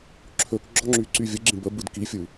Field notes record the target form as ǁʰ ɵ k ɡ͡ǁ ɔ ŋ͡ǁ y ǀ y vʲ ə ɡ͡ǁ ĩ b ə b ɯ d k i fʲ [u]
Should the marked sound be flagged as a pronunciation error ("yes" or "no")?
yes